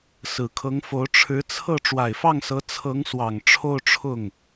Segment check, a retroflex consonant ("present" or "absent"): present